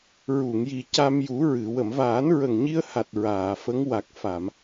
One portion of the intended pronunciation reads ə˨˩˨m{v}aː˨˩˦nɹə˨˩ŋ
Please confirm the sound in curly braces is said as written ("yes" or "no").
yes